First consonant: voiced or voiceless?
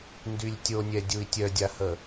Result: voiced